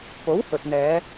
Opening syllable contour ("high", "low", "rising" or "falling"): rising